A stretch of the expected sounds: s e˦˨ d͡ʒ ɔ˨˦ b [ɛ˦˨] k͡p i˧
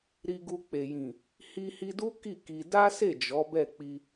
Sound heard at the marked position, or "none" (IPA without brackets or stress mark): ɛ˦˨